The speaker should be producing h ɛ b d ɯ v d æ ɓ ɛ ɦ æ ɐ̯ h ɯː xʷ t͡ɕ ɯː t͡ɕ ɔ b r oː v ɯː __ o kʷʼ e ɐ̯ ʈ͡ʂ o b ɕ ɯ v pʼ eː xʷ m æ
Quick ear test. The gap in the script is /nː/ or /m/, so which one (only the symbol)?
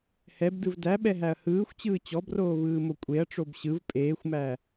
m